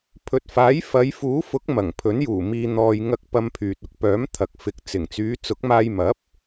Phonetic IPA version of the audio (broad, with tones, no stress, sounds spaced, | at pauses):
pʰ ɵ˨ t̚ f aː˨˥ j f ɐ˨˧ j f uː˨˥ f ʊ˨˥ k̚ m ɐ˨˩ ŋ pʰ ɵ˨˥ n j uː˨˩ m iː˧ n̪ ɔː˨ j ŋ ɐ˧ k̚ p ɐ˧ m pʰ yː˨ t̚ ʊ˧ k̚ p œː˨˥ m t̪ʰ ɐ˨ k̚ f ɪ˨˥ k̚ t͡s ɪ˨˩ ŋ t͡s yː˨˧ t͡s ʊ˨˥ k̚ m aː˧ j m ɐ˨˥ p̚